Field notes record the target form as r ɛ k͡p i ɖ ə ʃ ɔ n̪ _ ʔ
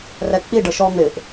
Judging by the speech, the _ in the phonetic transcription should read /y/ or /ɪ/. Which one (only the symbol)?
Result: ɪ